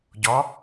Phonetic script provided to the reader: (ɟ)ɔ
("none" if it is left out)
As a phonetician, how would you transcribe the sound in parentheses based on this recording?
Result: ɟ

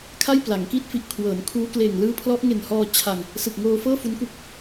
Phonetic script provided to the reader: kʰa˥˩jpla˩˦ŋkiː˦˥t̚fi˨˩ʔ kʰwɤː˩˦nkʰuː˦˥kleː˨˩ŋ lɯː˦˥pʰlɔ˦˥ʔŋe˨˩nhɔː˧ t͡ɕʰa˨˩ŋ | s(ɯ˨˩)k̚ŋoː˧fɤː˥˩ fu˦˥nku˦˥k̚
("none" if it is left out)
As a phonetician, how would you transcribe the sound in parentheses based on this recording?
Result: ɯ˨˩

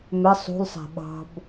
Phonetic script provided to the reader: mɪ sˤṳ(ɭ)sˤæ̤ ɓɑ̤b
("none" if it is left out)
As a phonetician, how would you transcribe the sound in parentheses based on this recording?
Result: l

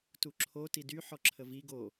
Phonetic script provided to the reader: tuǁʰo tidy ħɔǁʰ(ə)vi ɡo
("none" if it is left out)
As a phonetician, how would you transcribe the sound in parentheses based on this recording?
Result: ə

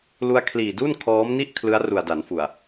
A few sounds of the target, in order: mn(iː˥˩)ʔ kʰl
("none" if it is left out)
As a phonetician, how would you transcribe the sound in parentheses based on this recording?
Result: i˥˩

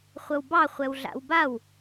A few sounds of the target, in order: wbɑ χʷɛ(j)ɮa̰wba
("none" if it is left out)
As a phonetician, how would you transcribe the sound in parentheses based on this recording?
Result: w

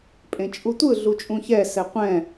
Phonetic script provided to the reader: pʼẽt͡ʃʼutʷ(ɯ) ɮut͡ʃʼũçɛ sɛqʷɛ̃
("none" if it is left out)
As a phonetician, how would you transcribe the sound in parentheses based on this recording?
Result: ɯ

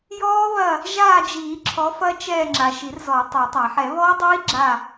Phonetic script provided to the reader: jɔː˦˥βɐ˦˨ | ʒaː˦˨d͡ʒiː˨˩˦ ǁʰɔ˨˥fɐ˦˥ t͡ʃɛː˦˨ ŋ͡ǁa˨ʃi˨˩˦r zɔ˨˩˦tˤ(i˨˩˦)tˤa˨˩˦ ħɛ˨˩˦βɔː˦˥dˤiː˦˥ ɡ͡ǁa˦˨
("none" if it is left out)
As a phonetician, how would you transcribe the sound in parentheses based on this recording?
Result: i˨˩˦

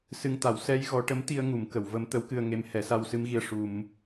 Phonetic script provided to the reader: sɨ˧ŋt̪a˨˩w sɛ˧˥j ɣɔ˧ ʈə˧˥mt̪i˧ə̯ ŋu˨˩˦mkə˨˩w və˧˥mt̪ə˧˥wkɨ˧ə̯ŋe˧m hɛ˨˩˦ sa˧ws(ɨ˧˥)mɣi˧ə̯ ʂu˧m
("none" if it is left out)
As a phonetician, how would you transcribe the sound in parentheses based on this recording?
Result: ɨ˧˥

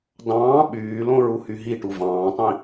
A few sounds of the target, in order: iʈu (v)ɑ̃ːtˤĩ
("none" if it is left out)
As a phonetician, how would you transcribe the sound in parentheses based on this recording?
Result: v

